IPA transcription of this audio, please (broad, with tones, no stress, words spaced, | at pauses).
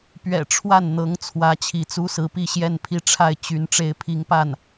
pɥɛ̰˨˩ ʈ͡ʂʰwa˥˩n n̪ɤ˧˥ŋt͡sʰwä˧˥ t͡ɕʰi˧˥t͡su˥sɹ̩˧˥pi˥˧ ɕjɛ˥˧npʰi˥˧ʈ͡ʂʰa˥˩ɪ̯ t͡ɕy˧˥n ʈ͡ʂe˧˥ɪ̯pʰi˧˥ŋpa˥˩n